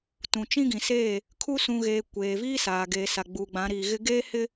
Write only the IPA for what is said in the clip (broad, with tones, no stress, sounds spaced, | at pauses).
t ũ˨ t͡ʃ ĩ˦ ɡ ĩ˨ s eː˦˨ | kʰ u˦ s ũ˨ ɣ eː˨ kʷ eː˨ v iː˦ s aː˨ ɡ eː˨ s a˨ ɡ͡b uː˨ ɡ͡b ã˨˦ ɾ iː˨ ɣ ɪ˦ ɡ eː˦ h ɪ˦